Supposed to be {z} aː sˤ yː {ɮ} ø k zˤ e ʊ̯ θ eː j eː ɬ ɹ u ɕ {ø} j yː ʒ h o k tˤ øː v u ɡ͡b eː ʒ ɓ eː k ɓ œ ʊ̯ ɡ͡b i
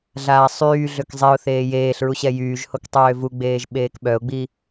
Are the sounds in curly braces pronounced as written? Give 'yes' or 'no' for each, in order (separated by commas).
no, yes, no